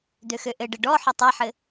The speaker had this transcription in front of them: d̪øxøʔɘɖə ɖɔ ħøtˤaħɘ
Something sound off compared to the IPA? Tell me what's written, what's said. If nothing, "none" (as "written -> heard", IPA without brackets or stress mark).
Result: none